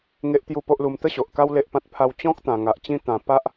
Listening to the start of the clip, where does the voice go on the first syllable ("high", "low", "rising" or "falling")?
high